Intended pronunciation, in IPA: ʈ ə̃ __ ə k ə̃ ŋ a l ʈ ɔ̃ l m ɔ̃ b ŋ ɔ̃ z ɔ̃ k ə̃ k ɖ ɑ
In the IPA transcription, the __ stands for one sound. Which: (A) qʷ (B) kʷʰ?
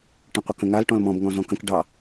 A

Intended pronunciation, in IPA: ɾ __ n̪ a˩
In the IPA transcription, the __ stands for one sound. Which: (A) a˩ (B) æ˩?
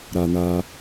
A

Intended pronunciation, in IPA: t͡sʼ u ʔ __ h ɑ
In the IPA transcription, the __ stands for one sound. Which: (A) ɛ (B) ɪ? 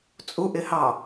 B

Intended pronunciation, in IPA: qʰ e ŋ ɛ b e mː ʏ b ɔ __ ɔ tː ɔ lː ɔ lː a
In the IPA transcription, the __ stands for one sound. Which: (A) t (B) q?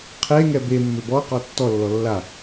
B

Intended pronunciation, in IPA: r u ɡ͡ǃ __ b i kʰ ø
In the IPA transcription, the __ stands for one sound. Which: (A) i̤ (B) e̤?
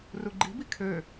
A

